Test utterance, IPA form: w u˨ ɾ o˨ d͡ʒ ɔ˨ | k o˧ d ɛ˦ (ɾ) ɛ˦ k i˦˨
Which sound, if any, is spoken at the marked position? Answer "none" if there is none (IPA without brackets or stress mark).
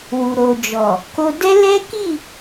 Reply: l